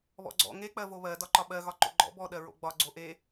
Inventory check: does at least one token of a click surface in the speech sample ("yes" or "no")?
yes